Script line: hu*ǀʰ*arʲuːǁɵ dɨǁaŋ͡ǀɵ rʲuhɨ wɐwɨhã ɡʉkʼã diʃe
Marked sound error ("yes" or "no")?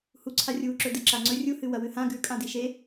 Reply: no